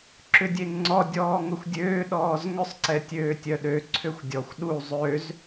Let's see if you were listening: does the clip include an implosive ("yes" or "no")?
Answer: yes